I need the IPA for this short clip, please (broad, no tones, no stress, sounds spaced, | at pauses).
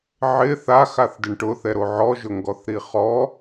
ʕ ɪ θ a x a θ d ɪ ɳ ʈ ʊ θ ɛ ɾ o ʕ ɔ ʒ ʊ ŋ ɡ ɔ θ ɾ i χ ɔ